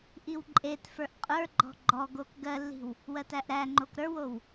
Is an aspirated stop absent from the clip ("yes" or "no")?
yes